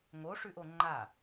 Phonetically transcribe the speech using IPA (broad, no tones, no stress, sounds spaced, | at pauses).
ŋ o ʂ ʉ ʔ o ŋ͡ǃ a